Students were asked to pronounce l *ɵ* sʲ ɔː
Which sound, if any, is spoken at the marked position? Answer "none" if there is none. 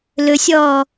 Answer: ɵ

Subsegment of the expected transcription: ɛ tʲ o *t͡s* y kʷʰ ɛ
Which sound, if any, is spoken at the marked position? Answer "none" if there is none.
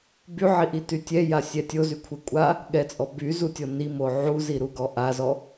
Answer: z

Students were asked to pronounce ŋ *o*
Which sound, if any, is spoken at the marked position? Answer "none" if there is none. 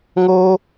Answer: o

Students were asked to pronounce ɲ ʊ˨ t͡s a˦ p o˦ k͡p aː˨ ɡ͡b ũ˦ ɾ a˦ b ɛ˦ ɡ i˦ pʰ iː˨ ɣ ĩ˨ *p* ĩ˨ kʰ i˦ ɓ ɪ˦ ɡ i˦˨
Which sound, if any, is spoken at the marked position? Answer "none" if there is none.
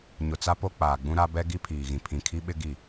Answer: pʰ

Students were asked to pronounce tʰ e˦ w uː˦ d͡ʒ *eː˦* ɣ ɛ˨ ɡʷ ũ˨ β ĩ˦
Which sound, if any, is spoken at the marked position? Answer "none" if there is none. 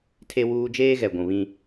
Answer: eː˦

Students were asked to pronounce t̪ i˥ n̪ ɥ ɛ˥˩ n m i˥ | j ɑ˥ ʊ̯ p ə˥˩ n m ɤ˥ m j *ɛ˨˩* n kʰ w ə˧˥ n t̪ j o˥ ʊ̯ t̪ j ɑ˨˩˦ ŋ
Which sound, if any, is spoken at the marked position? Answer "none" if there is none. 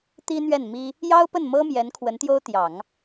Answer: ɛ˧˥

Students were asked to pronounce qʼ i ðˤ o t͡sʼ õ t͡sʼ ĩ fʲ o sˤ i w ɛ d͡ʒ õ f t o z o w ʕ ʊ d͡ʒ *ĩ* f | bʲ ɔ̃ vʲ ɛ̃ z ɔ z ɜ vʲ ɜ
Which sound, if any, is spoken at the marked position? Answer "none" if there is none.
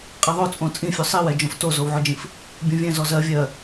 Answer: ĩ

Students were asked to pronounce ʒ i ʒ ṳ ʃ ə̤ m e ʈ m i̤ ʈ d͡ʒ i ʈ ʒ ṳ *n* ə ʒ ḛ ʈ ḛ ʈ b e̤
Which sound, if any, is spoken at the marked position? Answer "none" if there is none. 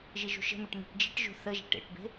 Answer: θ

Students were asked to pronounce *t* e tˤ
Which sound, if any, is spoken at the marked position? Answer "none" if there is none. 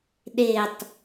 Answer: ɗ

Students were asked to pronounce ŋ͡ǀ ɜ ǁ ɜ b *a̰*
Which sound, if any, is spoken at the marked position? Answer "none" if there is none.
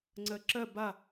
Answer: a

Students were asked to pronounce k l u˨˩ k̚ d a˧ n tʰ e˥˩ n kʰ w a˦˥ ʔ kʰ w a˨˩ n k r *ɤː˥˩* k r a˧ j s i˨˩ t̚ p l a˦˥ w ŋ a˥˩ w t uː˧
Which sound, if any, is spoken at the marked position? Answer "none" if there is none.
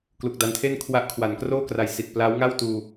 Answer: oː˥˩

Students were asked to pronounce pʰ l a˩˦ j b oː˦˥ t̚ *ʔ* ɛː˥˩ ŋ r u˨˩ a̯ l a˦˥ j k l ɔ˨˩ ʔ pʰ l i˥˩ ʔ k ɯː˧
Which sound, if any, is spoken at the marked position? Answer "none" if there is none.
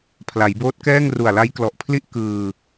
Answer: k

